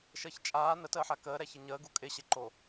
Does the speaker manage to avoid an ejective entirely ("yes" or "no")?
no